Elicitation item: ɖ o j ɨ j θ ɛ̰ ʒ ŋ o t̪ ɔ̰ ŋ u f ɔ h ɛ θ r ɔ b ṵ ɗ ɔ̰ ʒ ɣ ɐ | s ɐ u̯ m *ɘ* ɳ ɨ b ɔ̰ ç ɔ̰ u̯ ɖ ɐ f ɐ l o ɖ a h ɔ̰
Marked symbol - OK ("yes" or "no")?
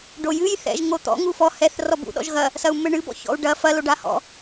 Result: yes